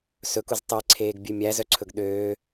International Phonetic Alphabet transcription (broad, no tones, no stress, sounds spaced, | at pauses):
s ɵ k u z tˤ e ǀʰ eː ɡ bʲ ʉ mʲ æ z œ ǀʰ ɵ ɡ ɗ øː